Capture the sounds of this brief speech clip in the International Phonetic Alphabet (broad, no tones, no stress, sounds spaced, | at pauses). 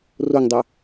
r o ŋ dˤ œ